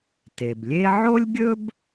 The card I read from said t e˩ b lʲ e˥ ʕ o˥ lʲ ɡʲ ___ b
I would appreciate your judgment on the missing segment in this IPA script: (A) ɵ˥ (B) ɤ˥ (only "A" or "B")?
A